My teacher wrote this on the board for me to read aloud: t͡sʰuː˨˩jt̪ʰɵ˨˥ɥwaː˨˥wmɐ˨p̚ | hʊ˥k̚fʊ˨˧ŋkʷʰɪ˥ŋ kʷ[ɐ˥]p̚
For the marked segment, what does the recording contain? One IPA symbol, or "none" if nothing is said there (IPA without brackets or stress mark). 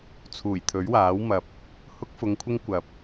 ɐ˨